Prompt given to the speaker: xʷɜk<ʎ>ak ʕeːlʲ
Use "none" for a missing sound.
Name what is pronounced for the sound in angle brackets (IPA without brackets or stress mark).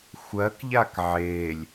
ʎ